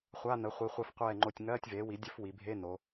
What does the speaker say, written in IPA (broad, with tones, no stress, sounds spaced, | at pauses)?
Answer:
χʷ a˧˥˧ n ə˩˥ χʷ i˩˧ χʷ ɛ˧˩ f qʷ ɛː˧˩ ŋ͡ǃ o˧˩ tʲ ŋ ɜː˧˥˧ tʲ v eː˩˥ w i˩˥ dʲ ə˧˥˧ f w i˩˧ bʱ e˧˥˧ n o˩˧